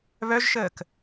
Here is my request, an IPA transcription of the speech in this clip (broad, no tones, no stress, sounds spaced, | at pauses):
β œ ʒ ʃ əː k